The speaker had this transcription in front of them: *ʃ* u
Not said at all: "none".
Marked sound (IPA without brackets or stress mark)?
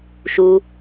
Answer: ʃ